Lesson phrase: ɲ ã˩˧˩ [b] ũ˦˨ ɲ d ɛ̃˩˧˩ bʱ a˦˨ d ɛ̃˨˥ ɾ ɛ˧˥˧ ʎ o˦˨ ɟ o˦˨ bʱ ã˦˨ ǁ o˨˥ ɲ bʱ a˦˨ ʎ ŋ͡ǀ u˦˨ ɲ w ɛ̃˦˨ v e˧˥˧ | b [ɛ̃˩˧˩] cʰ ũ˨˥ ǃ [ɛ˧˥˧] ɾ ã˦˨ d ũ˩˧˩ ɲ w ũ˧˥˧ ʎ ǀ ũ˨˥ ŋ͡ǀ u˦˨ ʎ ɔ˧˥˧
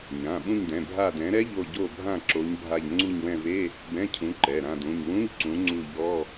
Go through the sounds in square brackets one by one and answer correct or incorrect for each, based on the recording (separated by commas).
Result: incorrect, incorrect, incorrect